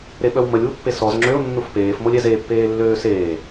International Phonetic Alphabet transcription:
ɾeɓœwməlʲwu pːesɔz ŋ͡ǁøʊ̯ nːufpeːfmolʲ ɛzepːeː lːøːseː

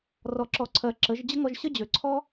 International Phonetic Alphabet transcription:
rɔ˨ǁɔ˨ǀʰɜ˨ ǁə˨˦ʒ d͡ʑə˦ŋɔ˧ʒ ɕə˦d͡ʑø˨ǀʰɔ˦

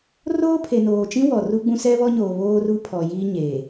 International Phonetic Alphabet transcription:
roː˦pʰe˨noː˨t͡ʃĩ˦ wɔ˨ru˦ɡ͡bũ˦ sɛ˦βɔ˦ɲoː˨ βoː˦ru˦pʰɔ˨ jiː˦ɲeː˨

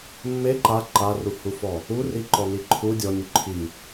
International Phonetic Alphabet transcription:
mːe ǃa ǃaruhufɔ | uriǃɔni ǃʰu dʲɔnʲu ǃʰi

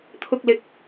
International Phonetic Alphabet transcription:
t̪ʰʊ˨k̚lɪ˨˥k̚

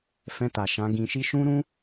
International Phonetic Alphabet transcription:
fɛ̃˧ta˨ ʃã˨˦ɡĩ˧ʃi˦ ʃũ˦ɾũ˦

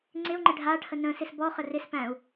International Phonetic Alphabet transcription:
ŋ͡ǀɪu̯ŋ͡ǃɪ ɖʱaʈʰə nə̃sɪs bɔχə rɪspæ̃u̯

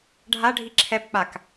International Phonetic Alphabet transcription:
ɖʱaɖʱi ǁʰɛb k͡pak

